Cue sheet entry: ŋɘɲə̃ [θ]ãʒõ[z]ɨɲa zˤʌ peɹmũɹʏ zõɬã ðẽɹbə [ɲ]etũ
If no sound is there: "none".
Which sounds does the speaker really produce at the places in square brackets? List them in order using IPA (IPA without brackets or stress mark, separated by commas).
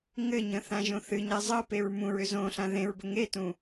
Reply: θ, θ, ŋ